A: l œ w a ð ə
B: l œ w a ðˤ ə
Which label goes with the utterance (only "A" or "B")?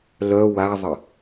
B